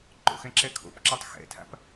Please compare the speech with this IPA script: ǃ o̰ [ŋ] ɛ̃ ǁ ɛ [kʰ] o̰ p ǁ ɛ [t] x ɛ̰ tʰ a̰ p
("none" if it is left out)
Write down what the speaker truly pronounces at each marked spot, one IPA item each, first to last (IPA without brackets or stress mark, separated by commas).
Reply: x, kʰ, tˤ